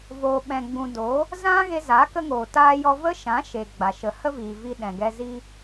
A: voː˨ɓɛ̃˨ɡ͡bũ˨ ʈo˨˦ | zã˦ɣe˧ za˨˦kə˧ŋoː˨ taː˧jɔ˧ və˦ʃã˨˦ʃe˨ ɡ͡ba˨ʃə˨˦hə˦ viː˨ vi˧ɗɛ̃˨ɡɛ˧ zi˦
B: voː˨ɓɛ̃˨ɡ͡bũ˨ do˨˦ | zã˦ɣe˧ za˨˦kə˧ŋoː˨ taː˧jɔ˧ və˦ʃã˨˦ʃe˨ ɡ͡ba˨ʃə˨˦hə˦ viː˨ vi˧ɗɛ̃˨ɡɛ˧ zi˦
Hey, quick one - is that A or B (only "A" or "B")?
B